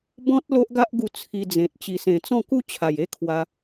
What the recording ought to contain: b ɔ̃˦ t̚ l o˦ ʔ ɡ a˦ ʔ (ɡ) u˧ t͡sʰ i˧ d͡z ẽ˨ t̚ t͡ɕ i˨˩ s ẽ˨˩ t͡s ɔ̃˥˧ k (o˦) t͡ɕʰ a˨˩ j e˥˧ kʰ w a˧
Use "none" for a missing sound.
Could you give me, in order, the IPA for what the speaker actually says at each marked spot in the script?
ɡ, u˦

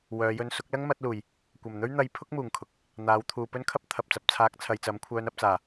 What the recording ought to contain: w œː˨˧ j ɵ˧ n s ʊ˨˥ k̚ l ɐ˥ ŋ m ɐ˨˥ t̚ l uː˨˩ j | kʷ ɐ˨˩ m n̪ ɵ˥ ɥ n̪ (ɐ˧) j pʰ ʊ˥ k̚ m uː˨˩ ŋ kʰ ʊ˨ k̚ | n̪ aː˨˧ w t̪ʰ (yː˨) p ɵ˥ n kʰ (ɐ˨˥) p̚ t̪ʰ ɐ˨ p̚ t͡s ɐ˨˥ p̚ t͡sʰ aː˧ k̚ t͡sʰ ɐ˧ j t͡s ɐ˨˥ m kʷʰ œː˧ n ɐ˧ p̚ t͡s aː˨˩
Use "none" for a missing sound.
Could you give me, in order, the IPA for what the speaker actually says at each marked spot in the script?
ɐ˧, uː˨, ɐ˥

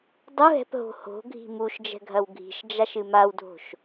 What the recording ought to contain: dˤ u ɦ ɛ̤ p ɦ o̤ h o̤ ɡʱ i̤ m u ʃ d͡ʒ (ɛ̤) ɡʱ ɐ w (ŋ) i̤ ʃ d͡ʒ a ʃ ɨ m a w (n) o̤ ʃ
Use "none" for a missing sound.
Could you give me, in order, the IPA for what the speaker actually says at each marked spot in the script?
ɛ̤, ɡʱ, dʱ

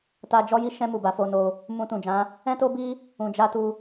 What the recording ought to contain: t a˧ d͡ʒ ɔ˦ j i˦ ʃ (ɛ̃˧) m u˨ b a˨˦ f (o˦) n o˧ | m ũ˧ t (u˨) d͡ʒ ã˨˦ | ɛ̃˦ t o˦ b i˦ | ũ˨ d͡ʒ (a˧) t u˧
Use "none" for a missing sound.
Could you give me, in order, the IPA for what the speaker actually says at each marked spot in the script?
ɛ̃˧, o˧, ũ˨, a˧

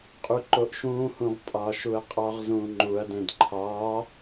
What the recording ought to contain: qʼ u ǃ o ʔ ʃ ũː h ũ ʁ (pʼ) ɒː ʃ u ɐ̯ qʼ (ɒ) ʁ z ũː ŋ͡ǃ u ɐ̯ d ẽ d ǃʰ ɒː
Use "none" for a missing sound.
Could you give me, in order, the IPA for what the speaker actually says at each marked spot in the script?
pʼ, ɒ

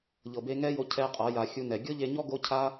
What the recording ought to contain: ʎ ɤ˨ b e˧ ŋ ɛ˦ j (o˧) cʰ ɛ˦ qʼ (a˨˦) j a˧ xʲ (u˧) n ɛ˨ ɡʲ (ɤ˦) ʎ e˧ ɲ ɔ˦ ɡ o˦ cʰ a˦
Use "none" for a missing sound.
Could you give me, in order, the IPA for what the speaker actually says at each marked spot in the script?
o˧, a˨˦, u˧, ɤ˦

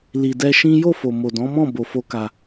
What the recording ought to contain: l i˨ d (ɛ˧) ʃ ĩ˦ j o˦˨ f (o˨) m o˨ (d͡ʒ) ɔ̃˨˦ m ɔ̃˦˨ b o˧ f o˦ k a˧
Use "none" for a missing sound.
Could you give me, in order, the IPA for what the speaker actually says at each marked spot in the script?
ɛ˧, o˨, d

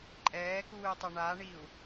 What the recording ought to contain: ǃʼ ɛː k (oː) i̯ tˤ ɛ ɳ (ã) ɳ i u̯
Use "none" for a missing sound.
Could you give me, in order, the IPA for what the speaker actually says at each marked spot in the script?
uː, a

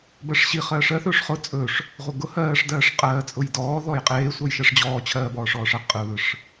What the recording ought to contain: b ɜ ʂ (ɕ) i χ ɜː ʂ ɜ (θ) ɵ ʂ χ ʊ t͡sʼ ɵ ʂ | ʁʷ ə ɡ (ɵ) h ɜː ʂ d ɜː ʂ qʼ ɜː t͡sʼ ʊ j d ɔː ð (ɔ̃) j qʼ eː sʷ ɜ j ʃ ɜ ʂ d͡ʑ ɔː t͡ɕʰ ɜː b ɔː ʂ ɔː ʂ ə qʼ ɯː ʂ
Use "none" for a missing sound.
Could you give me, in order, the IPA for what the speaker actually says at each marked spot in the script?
ɕ, θ, ʊ, ɔ

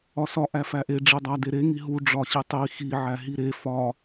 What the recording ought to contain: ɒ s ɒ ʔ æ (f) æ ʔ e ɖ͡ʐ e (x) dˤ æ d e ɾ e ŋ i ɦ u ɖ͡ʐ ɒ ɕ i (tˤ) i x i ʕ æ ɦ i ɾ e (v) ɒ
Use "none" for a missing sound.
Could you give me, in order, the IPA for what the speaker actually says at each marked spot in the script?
f, none, tˤ, f

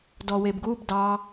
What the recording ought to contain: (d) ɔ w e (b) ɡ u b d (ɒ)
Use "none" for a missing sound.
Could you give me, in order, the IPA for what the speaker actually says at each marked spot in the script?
d, b, ɑ

